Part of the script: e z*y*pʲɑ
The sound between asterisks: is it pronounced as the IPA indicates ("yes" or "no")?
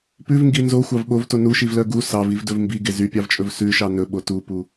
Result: yes